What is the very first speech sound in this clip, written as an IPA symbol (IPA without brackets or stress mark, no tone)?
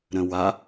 ɾ